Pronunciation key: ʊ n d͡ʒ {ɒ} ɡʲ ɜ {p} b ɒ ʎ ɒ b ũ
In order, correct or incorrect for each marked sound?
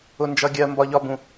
incorrect, incorrect

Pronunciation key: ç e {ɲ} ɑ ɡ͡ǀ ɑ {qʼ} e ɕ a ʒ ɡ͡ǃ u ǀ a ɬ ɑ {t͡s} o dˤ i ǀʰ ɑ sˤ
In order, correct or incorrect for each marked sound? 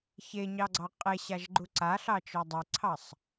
correct, correct, incorrect

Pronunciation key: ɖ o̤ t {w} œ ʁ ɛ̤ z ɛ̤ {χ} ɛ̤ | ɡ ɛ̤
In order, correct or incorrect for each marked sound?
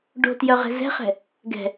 incorrect, correct

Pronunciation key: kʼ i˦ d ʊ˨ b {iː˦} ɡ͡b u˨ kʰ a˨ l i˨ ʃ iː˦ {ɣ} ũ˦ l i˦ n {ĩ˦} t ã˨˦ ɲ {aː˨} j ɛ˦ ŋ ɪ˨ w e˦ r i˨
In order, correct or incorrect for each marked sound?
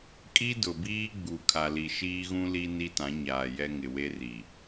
correct, correct, incorrect, correct

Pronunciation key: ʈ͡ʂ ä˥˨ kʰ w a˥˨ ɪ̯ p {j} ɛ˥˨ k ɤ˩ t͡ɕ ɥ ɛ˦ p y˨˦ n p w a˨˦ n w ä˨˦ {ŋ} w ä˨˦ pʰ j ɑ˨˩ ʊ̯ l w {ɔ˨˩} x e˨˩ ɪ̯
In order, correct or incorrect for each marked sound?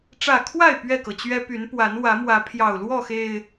incorrect, incorrect, incorrect

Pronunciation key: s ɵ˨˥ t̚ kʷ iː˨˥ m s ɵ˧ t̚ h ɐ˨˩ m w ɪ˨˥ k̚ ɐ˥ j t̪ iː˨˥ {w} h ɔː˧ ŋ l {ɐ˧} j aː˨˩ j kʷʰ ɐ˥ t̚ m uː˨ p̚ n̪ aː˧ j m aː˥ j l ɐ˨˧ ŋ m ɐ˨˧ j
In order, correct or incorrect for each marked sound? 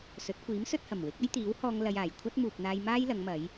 correct, incorrect

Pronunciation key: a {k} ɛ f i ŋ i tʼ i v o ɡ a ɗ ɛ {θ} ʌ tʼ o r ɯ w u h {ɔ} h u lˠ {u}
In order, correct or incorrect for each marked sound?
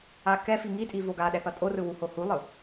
correct, correct, incorrect, incorrect

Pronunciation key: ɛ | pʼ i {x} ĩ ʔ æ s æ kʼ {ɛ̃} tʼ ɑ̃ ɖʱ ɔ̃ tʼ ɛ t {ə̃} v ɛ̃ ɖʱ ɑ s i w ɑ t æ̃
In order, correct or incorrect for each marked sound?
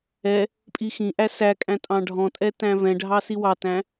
correct, incorrect, incorrect

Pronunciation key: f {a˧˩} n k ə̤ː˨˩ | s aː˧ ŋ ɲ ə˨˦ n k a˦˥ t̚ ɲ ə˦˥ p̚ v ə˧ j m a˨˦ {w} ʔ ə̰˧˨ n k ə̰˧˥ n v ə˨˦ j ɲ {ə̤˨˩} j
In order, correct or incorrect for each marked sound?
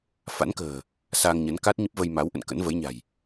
incorrect, correct, incorrect

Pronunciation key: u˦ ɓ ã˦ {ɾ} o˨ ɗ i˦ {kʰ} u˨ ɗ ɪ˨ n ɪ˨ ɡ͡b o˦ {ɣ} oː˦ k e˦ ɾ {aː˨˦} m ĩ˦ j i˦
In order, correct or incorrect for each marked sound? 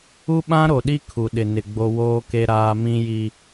correct, correct, incorrect, incorrect

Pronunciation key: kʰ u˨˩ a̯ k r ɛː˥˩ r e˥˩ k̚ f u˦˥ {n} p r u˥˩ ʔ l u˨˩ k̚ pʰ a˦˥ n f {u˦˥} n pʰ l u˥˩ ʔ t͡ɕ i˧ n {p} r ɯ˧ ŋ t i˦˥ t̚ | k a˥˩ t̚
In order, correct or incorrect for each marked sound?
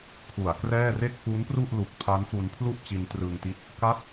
correct, incorrect, incorrect

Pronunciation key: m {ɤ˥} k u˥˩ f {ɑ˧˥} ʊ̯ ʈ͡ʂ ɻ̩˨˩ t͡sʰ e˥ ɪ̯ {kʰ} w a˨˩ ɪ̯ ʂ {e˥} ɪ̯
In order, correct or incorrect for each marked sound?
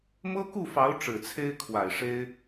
correct, correct, correct, correct

